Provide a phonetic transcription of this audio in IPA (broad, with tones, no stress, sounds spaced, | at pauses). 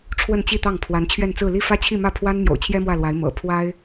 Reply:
ʈ͡ʂʰ w ə˥˧ n t͡ɕ i˥˧ t̪ ɑ˥˩ ŋ pʰ w a˧˥ n t͡ɕʰ ɥ ɛ˥˧ n t͡s ɹ̩˥˧ l i˥˩ f ä˥ t͡ɕʰ i˥˧ m ä˥˩ pʰ w a˥ n m j o̰˨˩ ʊ̯ t͡ɕʰ j ɛ˥ m w ä˥˩ l w a˧˥ ɪ̯ m ɤ̰˨˩ pʰ w a˥ ɪ̯